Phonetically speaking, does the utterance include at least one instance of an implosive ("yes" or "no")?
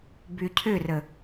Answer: no